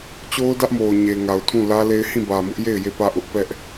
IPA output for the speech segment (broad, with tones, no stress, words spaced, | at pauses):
t͡ɕo˦ʊ̯dä˦ʔmo˨ʊ̯ɲe˨ ŋa˨ʊ̯tʰũ˦˨lä˦le˦ɪ̯ hĩ˦˨bä˨mʊ˦ʔje˦˨ɪ̯ je˦˨pä˦˨ʔʊ˦ʔ pɛ˦ʔ